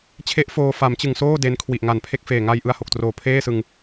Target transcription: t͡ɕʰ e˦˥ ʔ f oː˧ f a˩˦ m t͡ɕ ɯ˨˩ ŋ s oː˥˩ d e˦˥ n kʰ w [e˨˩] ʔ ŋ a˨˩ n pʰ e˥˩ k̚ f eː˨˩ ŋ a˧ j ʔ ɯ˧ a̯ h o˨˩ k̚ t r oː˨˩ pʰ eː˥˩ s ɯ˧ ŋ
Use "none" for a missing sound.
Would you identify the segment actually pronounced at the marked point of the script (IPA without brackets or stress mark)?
i˨˩